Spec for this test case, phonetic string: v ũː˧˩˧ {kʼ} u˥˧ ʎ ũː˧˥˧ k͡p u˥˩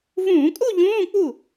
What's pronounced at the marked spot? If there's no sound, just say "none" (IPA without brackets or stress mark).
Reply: kʼ